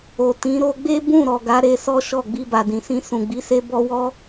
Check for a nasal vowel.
present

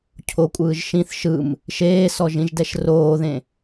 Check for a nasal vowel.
present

